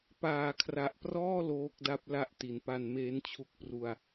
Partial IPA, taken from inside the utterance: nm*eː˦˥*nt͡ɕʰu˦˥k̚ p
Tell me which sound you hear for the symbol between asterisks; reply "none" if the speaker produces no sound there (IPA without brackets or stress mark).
eː˦˥